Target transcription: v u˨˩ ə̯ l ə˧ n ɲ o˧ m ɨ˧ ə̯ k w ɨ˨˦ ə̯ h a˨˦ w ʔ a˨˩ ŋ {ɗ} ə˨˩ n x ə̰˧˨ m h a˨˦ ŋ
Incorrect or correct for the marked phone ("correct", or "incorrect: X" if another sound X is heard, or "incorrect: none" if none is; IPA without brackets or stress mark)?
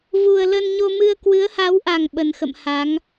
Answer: incorrect: ɓ